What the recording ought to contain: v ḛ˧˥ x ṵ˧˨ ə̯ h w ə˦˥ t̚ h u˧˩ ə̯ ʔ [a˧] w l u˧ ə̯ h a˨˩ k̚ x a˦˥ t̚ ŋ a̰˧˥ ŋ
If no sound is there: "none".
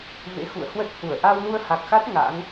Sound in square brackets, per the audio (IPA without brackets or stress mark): a˧